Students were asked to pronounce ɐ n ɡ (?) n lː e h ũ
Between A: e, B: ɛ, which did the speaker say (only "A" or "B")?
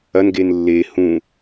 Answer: A